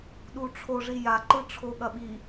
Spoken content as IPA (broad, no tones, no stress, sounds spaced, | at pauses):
ɗ u ʈ͡ʂʰ o ʐ i j a ǃ ɯ ʈ͡ʂʰ o ɠ ɐ ɓ i